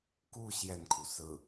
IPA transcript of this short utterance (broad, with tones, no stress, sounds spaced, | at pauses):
k u˥˧ ɕ j ɛ˥˩ n kʰ u˩ s ɹ̩˥˩